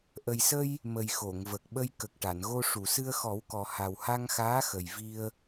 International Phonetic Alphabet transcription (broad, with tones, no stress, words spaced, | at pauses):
ʔə˨˩jsə˧j | mə˨˩jxo˨˩˨ŋvə˨˩k̚ɓə˧j kə˨˩k̚ʈa˨˩˨nɣo˧ ʂu˨˩˨sɨ˧ə̯xɔ˨˩˦wkɔ˨˩ ha˨˩wha˧ŋxaː˧˥xə˨˩j vi˧ə̯